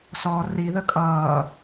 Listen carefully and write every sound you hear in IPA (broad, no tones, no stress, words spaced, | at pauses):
sɔ riðə kʼʌː